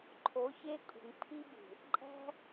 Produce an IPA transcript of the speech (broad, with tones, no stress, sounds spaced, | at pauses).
ǃʰ o˨˦ ç e˧ kʼ ṳ˨ ŋ pʰ i˧ b ṳ˨ | ǃʼ æ̤˧